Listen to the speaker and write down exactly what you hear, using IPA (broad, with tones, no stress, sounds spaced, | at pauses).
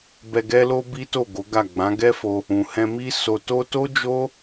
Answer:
b ɛ˧ ɡ ɛ˦ l o˦ b i˦ t o˦˨ ɡ o˨˦ ɡ a˦˨ ɡ͡b ã˨˦ ɡ ɛ˦ f o˧ | ũ˨ h ɛ̃˧ m i˦ s o˧ t o˦ t o˦ d͡ʒ o˦